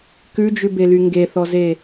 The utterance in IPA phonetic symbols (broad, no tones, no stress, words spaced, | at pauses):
kʉd͡ʒʉbely ŋɡeθɔze